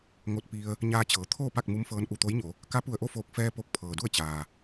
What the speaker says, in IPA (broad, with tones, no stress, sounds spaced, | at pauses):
ŋ o˧ t̚ p i˧ ə̯ | ɲ aː˧ t͡ɕ ɤː˩˧ t̪ʰ oː˥˨ p a˥˨ k̚ m u˧˥ m f ɤː˧ n ʔ u˧˩ t̪ o˧˥ j ɲ o˩˧ | k a˧˥ p u˧˩ ə̯ ʔ o˥˨ f oː˧˩ k̚ f ɛː˧ p o˧˩ k̚ pʰ ɤː˩ d u˥˨ ə̯ t͡ɕ aː˩